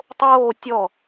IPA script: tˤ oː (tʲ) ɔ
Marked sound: correct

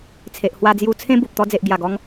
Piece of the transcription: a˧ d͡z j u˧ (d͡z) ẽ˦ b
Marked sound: incorrect: t͡sʰ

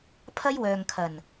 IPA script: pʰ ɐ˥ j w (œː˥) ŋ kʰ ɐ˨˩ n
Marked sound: incorrect: œː˨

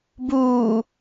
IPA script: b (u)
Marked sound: incorrect: uː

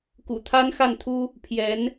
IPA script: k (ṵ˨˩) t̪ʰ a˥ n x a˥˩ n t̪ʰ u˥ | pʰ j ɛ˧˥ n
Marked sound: correct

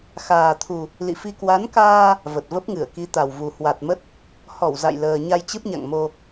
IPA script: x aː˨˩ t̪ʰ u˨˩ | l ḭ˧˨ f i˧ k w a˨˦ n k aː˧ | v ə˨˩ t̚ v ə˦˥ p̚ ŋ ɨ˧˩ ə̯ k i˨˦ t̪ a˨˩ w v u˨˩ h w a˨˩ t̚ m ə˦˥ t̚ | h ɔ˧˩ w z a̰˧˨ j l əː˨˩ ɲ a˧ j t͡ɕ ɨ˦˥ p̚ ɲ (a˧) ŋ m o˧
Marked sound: incorrect: a̰˧˨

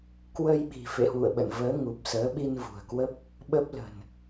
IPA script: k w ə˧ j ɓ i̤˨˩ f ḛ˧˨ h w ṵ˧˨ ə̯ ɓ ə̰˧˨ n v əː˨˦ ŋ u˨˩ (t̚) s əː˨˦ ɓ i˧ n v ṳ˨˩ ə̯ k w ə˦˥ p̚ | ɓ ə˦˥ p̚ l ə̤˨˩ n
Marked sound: incorrect: p̚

